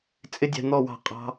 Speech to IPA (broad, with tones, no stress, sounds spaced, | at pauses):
t͡sʼ ɪ˦ dʲ ɛ̤˧ n̪ ɔ˦˨ w ɑ̤˦˨ qʼ ɑ̤˦